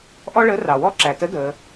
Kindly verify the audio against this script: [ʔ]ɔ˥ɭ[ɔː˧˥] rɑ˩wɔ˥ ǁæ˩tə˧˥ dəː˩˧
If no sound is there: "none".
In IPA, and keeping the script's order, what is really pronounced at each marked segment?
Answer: ʔ, əː˧˥

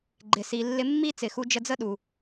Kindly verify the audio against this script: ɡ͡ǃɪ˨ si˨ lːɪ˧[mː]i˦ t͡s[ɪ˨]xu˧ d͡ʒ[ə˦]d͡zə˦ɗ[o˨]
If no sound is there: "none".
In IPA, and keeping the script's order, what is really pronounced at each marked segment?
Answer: mː, ɪ˨, ə˧, u˨

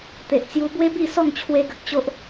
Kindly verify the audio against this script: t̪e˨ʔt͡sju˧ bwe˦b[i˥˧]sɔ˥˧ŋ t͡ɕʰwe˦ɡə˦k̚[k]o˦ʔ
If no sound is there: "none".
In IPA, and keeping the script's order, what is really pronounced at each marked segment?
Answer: i˥˧, t͡ɕ

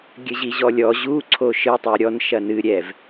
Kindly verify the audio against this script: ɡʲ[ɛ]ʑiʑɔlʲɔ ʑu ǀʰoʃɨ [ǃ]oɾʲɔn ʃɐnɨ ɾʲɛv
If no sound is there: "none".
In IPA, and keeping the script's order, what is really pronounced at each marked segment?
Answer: ɘ, tˤ

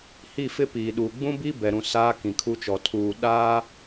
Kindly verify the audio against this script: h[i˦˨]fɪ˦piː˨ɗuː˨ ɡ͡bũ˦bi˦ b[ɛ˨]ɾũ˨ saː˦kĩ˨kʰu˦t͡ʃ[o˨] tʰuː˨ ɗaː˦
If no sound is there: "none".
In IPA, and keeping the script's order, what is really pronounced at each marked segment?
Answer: i˦˨, ɛ˨, ɔ˨

